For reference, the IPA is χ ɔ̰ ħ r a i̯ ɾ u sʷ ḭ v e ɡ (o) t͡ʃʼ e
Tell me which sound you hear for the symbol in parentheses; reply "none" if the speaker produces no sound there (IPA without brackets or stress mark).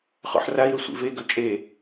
ɵ